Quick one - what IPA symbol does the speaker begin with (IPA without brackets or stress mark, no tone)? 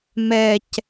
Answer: m